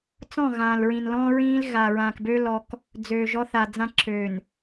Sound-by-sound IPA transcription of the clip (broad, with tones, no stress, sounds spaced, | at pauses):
t͡s ɔ̃˦˨ ɣ ãː˨ l ɹ ĩ˨ n l ɔ̃˦ ɹ ĩː˦ l ɣ a˨ ɹ ãː˨ k b ø˦ l ɔ˦ k | d͡z øː˨ ʒ ɔ˦ θ a˨ d͡z ã˦ ǁ øː˨ n